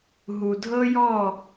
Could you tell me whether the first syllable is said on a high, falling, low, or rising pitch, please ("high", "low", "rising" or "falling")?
low